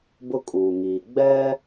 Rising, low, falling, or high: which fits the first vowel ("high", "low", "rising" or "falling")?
high